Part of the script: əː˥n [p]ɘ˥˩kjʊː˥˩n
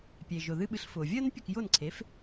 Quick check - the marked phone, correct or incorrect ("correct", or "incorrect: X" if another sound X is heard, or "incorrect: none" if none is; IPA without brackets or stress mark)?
incorrect: pʲ